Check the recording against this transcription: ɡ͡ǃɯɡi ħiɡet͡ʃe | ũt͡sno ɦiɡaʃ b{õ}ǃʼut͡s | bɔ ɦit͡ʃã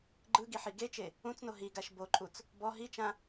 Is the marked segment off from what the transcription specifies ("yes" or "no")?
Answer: yes